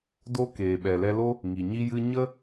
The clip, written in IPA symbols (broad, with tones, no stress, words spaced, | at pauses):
do˦keː˨ɓɛ˨ lɛ˧lo˦ | ŋi˨ɲi˦jɨ˦ ɲə˦